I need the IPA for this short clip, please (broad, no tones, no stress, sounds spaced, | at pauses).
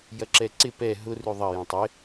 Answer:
j ɐ ǁ ɛ ǀ ɪ p ɛ ɦ ʊ r ʉ ðˤ ɐ j ɐ̃ tˤ ɪ